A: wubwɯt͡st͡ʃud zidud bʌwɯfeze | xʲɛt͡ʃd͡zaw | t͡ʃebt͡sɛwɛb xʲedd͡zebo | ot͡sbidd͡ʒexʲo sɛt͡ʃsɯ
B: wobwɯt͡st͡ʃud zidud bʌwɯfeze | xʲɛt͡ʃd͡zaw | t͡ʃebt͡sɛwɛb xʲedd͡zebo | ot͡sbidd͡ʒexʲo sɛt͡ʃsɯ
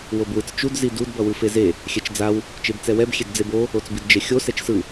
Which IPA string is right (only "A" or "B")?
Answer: B